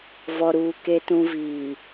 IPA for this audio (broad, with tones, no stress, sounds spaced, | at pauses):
v ɔ˨ ɾ uː˨ k e˨ t ũ˨ v iː˨